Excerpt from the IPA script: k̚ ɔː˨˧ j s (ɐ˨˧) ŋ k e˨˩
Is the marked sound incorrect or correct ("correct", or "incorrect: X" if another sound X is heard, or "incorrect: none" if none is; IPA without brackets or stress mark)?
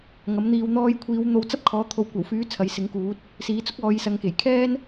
correct